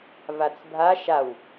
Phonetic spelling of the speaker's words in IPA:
vat͡sbʱa ʃaw

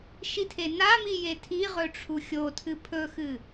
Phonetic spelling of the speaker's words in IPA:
ʃitʰenami jetʰiʁɵ ʈ͡ʂʰuxʲotʰɨ pʰɵxɨ

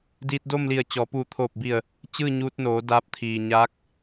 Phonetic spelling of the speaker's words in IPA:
diː˧t̚do˥˨mli˧˩ə̯t͡ɕɔː˩˧ puː˧˩t̪ʰoː˧˩p̚bi˧˩ə̯ | t͡ɕɯː˥˨ɲuː˧t̚noː˩˧ daː˧˥p̚t̪ʰiː˩ ɲa˧˥k̚

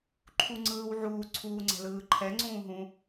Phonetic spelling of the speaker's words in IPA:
ǃʰuŋ͡ǀɯːwʕuː ǀʰuːŋ͡ǀɛ̤lɯːǃʰɛ ŋ͡ǀũːɦũ

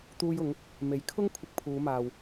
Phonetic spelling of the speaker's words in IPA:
t̪uː˧jʊ˨˧ŋ | me˨jkʰʊ˥ŋkʷʰɪ˧k̚ pʰuː˨˧maː˨w

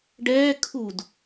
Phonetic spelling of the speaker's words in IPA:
ɖɛː kʰud

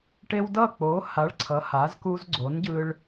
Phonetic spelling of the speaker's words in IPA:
ʈe˦w dʌ˥˨k͡po˨˥ ha˨˥ɭ ǀʰʌ˨˥ha˨˥zku˦z ɡ͡ǀo˨˥nɟɯ˦ɭ

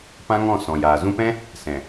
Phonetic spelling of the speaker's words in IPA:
pã˦ŋɔ̃˦˨ sɔ̃˨jaː˨ zũ˧pɛ̃˦ | sɛ̃˨

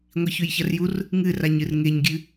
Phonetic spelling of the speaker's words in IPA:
ŋʷiçʉjçɐrjur | ŋɨraɲ ɨrŋeɲɡʲɨ

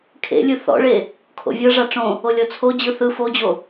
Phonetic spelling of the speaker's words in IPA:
kʰḛlʲɯ θɔ̰ɭe | kʰo̰vʲɤ ʐaʈ͡ʂõ | olʲɔt͡sʰo d͡ʑɯθɯ fod͡ʑo

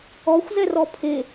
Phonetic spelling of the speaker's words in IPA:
ɔxʷ zɛrɔpʰe

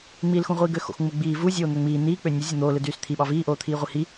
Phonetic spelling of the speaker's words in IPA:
ŋ͡miːlxũʁʷiːɡø xo̰xŋ͡muɡ͡biː vu zʲoːn̪øŋ͡miː n̪iː k͡pønʲɯ zʲun̪oːlɯ dyːst̪ʰiɓɑ viːʔoːt̪ʰiːʁʷi hi

